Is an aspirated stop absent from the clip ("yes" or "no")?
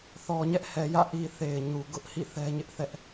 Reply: yes